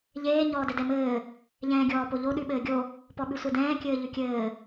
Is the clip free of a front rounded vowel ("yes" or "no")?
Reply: yes